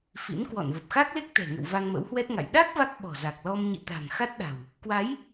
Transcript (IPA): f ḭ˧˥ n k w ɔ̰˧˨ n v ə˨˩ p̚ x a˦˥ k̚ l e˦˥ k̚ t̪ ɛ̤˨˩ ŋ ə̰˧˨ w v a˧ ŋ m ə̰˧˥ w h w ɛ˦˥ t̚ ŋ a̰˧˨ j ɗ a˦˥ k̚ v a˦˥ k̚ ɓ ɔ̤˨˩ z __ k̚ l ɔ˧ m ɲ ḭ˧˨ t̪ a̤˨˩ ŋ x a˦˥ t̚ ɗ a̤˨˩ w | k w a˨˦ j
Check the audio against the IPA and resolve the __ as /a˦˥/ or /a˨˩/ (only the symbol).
a˨˩